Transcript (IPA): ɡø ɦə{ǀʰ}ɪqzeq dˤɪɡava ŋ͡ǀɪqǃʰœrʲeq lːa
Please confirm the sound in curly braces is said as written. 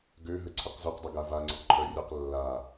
yes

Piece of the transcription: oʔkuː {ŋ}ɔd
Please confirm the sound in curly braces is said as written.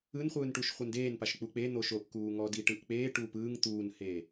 yes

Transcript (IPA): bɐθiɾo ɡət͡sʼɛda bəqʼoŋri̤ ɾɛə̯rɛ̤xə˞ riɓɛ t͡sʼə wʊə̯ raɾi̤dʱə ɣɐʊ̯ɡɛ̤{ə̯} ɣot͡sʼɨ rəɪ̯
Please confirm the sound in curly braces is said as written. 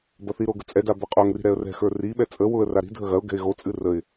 no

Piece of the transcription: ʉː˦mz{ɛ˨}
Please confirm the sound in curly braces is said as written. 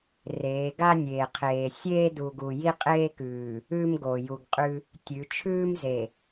no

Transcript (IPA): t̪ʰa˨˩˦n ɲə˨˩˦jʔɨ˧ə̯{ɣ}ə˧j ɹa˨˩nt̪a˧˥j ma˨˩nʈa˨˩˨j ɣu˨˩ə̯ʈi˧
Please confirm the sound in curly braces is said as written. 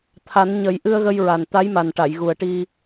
yes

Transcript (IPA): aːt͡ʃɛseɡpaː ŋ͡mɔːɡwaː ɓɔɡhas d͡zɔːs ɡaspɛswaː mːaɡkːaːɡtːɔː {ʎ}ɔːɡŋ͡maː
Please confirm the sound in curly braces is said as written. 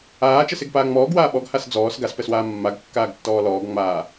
no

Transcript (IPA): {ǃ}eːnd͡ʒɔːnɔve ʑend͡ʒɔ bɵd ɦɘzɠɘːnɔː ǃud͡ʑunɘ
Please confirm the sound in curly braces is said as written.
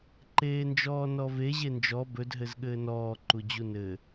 yes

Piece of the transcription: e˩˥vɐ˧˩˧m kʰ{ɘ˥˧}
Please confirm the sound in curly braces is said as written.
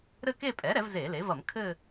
yes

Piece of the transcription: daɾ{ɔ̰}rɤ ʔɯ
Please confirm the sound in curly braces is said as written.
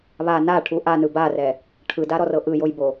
no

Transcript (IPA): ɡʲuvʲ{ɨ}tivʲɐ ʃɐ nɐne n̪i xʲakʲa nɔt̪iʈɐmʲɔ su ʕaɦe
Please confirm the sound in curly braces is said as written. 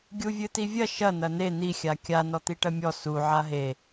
yes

